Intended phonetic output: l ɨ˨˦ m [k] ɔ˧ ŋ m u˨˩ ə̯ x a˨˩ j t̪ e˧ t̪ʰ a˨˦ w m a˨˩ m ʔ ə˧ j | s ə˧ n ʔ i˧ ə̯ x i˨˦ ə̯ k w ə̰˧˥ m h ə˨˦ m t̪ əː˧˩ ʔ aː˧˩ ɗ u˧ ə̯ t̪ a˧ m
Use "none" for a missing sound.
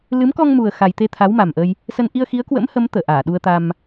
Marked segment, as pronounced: k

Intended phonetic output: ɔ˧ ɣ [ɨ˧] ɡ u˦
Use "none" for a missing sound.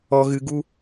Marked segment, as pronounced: ɨ˧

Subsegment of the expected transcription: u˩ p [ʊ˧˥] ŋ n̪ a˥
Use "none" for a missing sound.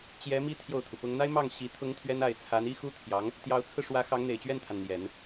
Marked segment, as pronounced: ʊ˥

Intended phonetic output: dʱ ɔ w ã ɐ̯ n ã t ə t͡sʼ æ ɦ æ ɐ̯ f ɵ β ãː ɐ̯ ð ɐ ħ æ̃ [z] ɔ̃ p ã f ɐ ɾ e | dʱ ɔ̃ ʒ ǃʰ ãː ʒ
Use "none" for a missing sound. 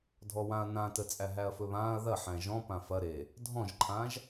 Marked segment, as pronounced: ʒ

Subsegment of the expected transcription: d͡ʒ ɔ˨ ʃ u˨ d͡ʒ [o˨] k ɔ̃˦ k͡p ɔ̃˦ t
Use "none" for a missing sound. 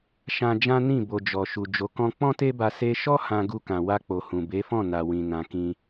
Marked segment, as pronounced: o˨˦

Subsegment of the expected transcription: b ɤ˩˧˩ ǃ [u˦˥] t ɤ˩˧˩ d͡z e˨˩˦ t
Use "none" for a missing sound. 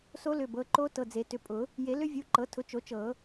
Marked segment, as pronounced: o˦˥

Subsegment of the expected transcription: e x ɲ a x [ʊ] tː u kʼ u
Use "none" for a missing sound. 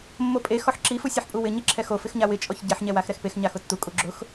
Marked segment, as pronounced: ʊ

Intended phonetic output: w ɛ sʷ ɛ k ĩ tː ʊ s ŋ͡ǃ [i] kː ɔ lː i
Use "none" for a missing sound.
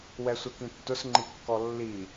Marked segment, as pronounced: i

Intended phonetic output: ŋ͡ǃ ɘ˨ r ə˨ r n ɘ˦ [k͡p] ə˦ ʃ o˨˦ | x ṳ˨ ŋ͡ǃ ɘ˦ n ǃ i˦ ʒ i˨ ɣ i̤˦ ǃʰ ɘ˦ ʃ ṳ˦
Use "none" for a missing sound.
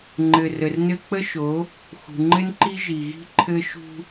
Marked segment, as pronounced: k͡p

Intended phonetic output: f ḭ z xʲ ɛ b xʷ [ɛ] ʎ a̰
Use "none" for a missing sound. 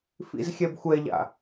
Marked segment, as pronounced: ɛ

